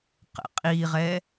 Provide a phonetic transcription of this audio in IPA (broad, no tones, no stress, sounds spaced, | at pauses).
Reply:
q ə̰ qʼ i ʁ ɛ